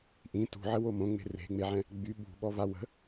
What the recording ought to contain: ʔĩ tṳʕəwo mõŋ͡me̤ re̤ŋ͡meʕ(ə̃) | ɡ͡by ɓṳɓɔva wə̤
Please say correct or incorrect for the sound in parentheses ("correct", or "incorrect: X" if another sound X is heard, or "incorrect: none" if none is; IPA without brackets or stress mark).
incorrect: ɛ̃